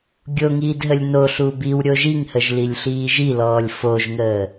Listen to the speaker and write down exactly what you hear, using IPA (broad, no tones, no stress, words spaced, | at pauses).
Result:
ɡʲoŋiːd ɦəlʲnoɬu biw ɾʲoʒiŋhəʒ lilʲɬiːʒilɔːlʲ foʒŋəː